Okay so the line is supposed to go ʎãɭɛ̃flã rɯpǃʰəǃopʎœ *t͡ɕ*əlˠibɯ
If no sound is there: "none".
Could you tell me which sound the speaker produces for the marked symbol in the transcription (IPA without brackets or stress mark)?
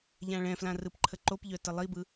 t